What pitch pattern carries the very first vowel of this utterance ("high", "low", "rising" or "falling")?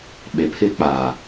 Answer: low